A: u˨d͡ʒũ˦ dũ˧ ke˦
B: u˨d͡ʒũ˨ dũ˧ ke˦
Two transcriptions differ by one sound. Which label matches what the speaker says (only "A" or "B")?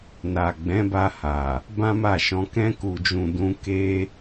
B